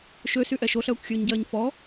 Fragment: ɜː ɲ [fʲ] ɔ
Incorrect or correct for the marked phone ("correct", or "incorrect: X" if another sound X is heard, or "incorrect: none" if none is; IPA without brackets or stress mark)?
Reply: incorrect: f